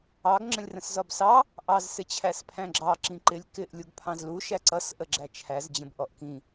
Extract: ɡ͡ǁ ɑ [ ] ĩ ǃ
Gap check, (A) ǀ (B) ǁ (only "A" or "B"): B